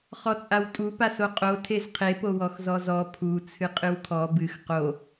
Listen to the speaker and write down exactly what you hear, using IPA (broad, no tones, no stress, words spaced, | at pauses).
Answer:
χɔt͡sʼawtʼu pasoqʼo tʰezqʰe powɔxzɔzɔ pʰu t͡sʰɨqʼɨwkʰɔ bɨx qo